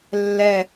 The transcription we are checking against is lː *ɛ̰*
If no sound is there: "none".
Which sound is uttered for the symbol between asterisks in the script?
ɛ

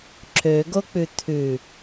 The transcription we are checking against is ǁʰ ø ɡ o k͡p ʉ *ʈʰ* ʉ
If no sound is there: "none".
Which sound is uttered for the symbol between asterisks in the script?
t̪ʰ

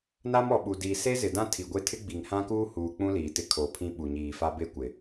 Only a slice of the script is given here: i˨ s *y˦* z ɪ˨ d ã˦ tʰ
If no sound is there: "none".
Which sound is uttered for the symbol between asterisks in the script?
e˦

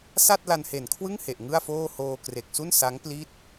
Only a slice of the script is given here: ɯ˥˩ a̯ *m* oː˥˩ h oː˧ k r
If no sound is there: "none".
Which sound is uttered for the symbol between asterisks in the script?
f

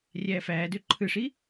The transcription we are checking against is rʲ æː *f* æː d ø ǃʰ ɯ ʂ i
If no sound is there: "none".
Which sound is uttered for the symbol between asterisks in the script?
f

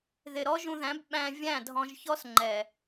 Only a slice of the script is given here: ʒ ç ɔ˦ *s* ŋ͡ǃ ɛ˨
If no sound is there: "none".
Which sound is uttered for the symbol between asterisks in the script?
s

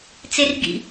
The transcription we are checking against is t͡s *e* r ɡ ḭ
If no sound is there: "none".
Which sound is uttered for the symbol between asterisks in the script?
e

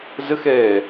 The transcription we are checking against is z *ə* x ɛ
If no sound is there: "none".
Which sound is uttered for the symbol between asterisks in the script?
ə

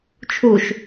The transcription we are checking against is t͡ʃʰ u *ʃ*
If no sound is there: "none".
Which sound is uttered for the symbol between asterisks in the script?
ʃ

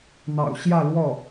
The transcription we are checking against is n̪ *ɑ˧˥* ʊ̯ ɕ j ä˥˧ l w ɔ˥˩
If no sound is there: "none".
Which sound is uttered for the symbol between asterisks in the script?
ɑ̰˨˩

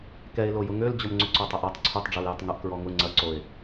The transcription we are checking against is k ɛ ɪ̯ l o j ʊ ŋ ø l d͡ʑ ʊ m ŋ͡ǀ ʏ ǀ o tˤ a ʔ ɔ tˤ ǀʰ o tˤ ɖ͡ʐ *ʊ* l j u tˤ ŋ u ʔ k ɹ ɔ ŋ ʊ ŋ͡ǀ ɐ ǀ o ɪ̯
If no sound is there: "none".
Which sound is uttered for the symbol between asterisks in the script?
ɔ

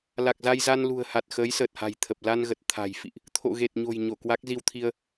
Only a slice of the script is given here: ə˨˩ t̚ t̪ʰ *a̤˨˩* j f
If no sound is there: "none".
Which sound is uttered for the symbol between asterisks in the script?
a̤˨˩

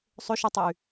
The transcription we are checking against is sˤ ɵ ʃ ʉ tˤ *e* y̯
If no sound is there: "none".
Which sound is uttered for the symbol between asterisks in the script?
e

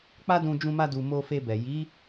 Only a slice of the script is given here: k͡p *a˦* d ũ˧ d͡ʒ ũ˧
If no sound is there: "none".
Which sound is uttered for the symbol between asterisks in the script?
a˦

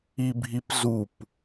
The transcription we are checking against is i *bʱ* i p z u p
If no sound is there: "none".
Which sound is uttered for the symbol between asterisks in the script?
bʱ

